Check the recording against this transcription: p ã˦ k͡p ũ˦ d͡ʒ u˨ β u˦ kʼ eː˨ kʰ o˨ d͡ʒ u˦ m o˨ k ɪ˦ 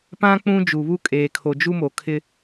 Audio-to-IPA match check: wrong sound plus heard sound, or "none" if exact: k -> kʰ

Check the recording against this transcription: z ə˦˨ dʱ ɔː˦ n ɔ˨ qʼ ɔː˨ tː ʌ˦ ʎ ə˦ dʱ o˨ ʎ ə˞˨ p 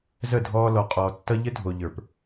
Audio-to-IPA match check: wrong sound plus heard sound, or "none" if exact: n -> l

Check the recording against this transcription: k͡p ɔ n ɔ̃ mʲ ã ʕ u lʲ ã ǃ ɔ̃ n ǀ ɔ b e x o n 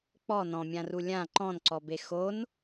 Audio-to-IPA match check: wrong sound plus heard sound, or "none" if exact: ʕ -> r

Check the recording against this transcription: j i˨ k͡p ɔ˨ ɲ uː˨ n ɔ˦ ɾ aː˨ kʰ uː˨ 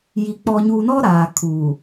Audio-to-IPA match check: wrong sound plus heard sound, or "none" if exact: none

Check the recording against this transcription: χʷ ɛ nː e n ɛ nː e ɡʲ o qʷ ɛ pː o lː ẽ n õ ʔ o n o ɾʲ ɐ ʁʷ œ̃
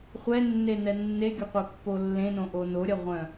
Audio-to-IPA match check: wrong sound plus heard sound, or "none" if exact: none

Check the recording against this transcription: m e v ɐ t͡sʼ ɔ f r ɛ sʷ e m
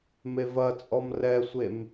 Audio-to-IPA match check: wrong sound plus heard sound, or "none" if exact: f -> m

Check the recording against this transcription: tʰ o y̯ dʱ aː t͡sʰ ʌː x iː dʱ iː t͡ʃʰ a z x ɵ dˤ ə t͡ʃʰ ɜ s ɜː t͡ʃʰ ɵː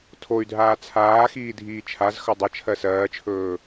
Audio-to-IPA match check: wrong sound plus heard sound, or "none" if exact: ʌː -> aː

